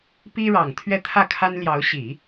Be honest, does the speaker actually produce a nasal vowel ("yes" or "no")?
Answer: no